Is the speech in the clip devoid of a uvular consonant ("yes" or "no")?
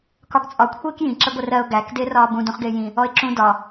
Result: no